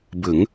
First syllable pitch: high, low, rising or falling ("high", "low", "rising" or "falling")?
rising